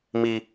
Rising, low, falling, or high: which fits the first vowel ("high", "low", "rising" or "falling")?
high